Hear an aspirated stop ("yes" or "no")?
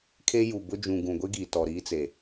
yes